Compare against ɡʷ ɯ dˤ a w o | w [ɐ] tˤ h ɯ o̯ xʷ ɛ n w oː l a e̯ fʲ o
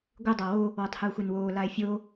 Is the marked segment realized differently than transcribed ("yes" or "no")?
yes